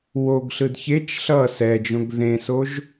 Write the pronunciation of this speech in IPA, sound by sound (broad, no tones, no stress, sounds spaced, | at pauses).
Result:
w o ɡ ɬ ɯ d ç e t͡ʃ ɬ ʌ s ɛ d͡ʒ õ ɡ ð ẽ s o ʒ